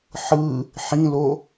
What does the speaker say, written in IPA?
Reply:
ħ ɯ | ħ ĩ l o

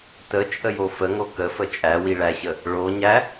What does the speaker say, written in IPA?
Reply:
t ə t͡ʃʼ ə j o f ə ŋ o k ə f ə t͡ʃʼ æ w i ɭ æ ɕ ə | ɭ o ɲ æ

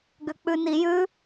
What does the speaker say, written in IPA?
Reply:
ɡ ʏ k͡p ʉ n i j ʉ

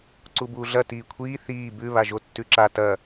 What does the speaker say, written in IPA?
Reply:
ǀ u b uː ɮ ɐ t iː kʷʰ iː θ iː b ʉ β a ʒ o tː ʉ ǁ a t ɐ

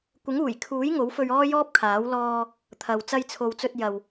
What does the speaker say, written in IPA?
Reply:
kʷ ɪ˨˥ ŋ uː˨˩ j kʰ uː˨˥ j ŋ o˨˥ w f ɵ˧ ɥ ɔː˥ j ɔː˥ p̚ kʰ aː˨˥ w l ɔː˧ | t̪ʰ ɐ˨ w t͡s ɐ˧ j t͡sʰ o˨ w t͡s ɵ˧ t̚ j ɐ˨ w

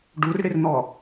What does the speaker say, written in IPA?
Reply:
ɖ u r ɽ ɪ r n̪ ɔ

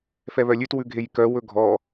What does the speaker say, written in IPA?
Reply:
f ɛ β œ lʲ ʉ t w ʉ ɡʱ e j k œ w ɵ ɡʱ ɔ

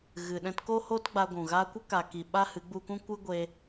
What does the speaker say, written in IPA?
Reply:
ɣ ɨ˨ ɗ ɛ̃˧ t k o˦ h o˦ t ɡ͡b a˧ ɡʷ ũ˨ ɣ a˧ kʷ ə˦ k a˨ k i˨ ɓ a˦ h ɨ˨˦ ɡ͡b u˧ k ũ˦ kʷ ɨ˦ ɡʷ e˧

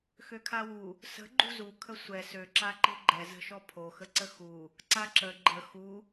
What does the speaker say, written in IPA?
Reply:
x ø kʰ a w u | s ə̤ ɡ͡ǃ ṳ z u kʰ ə sʷ ɛ s ø ǁ a ǃ i̤ ɡ͡ǃ ɛ z ə̤ ʃ ɔ pʰ o x ə ǀ ə x u | ǀ a ǁ ə ɡ͡ǃ ə x u

